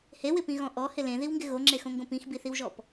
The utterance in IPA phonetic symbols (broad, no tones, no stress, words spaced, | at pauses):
hewɪpĩɣɔ̃ ʔɔhɪ lẽðiwŋɡɪ ɣoŋ͡ǁexõŋɡõ pĩxbiθiwʒɔp